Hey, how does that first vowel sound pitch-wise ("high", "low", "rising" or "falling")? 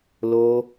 high